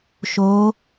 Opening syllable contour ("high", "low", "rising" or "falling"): rising